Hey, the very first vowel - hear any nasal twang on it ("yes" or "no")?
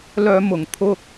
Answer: no